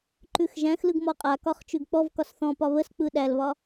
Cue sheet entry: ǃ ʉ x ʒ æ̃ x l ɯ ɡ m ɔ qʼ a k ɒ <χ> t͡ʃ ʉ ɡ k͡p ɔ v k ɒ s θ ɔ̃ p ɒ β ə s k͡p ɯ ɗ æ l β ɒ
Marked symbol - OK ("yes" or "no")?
yes